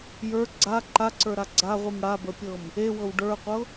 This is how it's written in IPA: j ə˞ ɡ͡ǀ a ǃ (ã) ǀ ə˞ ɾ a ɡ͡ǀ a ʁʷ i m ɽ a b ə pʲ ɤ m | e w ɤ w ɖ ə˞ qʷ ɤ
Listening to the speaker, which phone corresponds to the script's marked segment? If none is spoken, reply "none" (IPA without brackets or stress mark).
a